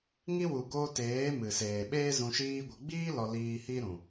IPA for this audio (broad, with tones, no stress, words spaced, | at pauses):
ŋi˦ wu˨ɡoː˧teː˨˦ mɨ˨seː˨ɓeː˦ zũ˧ʃiː˦ɡʷə˧ ɡ͡biː˦ lɔ˧liː˧ hi˦ɾũ˨